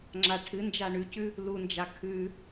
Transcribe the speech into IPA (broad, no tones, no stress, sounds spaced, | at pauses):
ŋ͡ǁ a ʈʰ ɨ n d͡ʒ a ɳ ʉ c ʉ | l u n d͡ʒ a kʰ ʉ